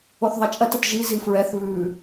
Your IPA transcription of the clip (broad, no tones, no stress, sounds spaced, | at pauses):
o θ ðˤ ɐ t͡ʃʼ ɐ t ə t ʒ i z i f ɹ ɛ θ β ʉ